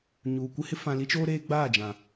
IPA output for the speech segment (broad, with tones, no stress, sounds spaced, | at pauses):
ɲ uː˨ kʷ ɪ˦ h ɪ˦ f ã˨ l i˦ t͡ʃ oː˦ ɾ eː˦ ɡ͡b aː˦˨ d͡ʒ ã˨